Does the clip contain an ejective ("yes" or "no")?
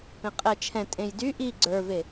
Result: yes